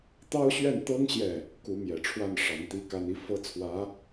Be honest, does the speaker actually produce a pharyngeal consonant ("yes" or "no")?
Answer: no